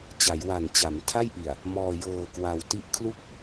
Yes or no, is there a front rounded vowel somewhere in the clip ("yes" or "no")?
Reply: no